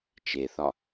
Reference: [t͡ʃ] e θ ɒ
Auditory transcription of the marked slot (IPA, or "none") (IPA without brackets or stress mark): t͡ʃ